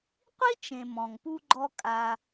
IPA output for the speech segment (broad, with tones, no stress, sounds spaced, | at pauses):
qʷ i˥ t͡ʃ ẽ˨ m ɔ̃˩ ŋ p u˥ ɡ͡ǃ ɔ˦ kʼ a˨